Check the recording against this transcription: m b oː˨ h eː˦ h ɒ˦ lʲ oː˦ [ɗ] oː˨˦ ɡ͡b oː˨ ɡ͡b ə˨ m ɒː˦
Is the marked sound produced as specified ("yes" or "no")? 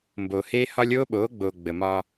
no